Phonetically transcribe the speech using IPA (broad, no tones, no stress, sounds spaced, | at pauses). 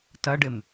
t ɐ ɖ ɪ m